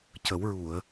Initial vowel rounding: unrounded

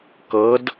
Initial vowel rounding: unrounded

